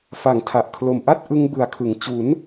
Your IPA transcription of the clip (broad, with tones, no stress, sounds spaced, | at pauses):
f a˨˩ ŋ tʰ a˨˩ ʔ kʰ l o˨˩ m ʔ a˥˩ t̚ ʔ ɯ˦˥ ŋ b ɯ˨˩ a̯ kʰ ɯ˨˩ ŋ t͡ɕ u˩˦ n